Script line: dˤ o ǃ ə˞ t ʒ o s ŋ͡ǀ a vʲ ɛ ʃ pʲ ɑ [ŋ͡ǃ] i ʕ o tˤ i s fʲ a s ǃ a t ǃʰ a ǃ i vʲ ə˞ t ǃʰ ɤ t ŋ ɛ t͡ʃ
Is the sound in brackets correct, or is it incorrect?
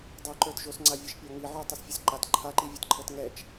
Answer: incorrect